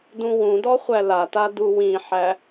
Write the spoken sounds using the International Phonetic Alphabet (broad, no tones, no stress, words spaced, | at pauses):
dũwũdɔ χʷælata duwĩħæ